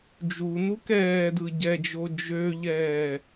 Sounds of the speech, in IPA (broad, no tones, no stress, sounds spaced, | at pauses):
d͡ʒ u n u k ɛː d ɯ ɟ ɛ d͡ʒ o d͡ʒ ø ʎ ɛː